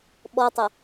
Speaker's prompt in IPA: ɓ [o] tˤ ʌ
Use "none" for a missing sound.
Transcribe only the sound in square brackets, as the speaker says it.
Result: ɔ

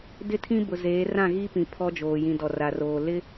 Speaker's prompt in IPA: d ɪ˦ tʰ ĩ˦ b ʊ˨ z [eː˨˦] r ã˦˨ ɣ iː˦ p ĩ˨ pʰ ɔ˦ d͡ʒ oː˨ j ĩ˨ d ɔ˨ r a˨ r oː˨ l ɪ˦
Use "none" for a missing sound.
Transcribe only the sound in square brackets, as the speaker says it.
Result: eː˨˦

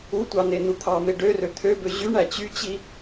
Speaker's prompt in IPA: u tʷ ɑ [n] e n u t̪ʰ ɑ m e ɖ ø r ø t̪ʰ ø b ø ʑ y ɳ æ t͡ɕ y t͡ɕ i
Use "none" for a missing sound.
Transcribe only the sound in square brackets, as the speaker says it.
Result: n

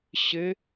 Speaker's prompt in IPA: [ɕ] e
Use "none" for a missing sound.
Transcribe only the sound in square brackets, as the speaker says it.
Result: ɕ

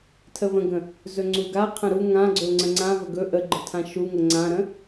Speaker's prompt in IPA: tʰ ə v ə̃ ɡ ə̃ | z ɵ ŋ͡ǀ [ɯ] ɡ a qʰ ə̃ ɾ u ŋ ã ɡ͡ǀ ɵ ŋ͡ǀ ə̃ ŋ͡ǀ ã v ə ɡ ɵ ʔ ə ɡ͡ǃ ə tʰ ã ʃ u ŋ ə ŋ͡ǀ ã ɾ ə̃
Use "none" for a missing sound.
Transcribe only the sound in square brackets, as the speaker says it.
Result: u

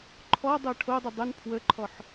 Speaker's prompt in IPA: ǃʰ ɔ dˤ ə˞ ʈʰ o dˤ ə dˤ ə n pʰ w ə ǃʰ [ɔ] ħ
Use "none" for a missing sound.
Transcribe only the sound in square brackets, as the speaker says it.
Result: ɔ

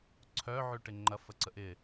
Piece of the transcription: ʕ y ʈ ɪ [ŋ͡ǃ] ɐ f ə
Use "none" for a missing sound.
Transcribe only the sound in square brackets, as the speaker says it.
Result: ŋ͡ǃ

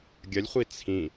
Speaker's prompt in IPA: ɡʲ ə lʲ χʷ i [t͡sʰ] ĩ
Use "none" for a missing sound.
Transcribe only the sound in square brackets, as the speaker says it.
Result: t͡sʰ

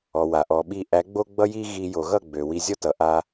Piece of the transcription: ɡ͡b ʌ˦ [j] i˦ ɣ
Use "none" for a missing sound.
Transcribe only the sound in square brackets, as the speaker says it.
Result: j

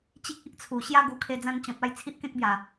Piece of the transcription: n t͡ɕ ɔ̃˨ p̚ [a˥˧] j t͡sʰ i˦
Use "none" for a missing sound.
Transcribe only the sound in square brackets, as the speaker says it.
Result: a˧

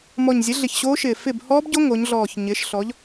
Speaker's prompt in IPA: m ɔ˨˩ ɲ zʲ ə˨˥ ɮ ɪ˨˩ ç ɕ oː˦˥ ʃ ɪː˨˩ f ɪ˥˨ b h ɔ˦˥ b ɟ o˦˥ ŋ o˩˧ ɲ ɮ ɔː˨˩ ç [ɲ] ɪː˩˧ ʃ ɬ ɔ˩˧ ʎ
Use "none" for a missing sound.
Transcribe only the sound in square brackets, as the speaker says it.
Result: ɲ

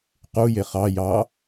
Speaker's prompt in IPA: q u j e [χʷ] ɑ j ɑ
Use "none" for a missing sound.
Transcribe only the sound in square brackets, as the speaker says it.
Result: χ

